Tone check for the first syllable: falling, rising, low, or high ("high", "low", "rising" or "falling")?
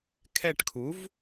falling